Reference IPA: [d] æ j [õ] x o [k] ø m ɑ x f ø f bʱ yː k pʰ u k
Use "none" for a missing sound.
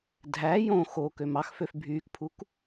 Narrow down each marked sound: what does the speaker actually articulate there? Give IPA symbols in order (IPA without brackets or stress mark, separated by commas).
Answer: dʱ, õ, k